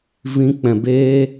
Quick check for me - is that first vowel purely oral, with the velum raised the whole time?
no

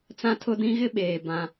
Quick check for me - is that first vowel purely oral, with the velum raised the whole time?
no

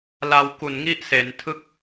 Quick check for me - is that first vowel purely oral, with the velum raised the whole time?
yes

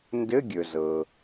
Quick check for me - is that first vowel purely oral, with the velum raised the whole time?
yes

